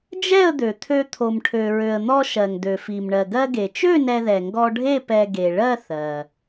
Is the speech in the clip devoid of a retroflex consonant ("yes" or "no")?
no